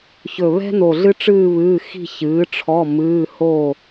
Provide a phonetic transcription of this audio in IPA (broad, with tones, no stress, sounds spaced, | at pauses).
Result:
ç ɵ˧˩ β ɛ̤˥ n o˧˩ ɮ ɨ˥ ʈ͡ʂ ɨː˥˧ β ɨː˧˥˧ x i̤˥˧ ç ɨː˨˥ ʈ͡ʂʰ ɔ˧˥˧ m ɨː˧˥˧ h o˥˧